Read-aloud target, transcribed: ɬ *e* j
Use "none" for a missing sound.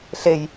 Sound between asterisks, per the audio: e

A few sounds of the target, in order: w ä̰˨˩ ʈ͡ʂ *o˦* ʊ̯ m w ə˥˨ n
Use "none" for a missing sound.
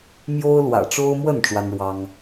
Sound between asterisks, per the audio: o˦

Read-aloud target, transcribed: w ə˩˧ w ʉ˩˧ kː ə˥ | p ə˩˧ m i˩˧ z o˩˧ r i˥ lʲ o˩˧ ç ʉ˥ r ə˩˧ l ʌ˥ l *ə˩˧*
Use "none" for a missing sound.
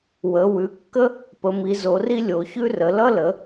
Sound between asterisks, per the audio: ə˩˧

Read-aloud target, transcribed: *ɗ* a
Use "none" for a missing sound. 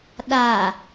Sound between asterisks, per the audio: ɗ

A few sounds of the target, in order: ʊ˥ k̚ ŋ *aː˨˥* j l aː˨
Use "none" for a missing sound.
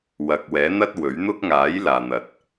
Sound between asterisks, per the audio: aː˨˥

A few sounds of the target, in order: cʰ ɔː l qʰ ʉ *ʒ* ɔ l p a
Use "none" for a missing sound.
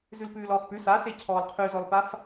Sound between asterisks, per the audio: z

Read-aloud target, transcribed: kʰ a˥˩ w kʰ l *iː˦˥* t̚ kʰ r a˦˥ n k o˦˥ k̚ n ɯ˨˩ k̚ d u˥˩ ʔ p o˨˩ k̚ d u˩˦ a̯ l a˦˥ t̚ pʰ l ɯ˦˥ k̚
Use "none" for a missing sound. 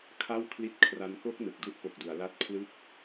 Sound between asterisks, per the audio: i˦˥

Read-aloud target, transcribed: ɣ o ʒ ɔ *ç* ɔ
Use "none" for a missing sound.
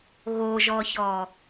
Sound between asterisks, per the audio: ç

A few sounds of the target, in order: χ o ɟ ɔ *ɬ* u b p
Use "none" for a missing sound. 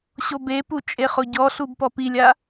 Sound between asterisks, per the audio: ɬ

